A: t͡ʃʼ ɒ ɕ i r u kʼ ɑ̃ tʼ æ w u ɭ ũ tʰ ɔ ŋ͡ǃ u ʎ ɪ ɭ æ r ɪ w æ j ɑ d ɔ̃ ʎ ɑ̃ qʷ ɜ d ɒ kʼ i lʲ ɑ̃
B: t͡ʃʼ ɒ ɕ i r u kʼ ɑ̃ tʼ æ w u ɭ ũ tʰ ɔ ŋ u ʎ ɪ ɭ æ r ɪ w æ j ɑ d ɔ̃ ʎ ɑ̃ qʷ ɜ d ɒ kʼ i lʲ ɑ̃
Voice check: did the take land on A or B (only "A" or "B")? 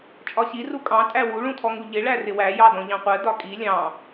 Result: B